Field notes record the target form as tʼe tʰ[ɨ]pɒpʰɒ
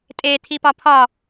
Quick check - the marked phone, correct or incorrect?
incorrect